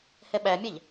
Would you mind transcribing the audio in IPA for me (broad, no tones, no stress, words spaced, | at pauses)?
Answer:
hɛɓæmʲæʎ